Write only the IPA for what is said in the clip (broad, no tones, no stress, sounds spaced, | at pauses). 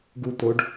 ɡ u t̪ o ɖ